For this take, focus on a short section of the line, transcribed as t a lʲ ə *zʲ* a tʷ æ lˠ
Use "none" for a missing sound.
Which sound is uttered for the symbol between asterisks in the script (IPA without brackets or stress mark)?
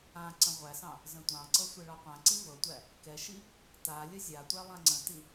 zʲ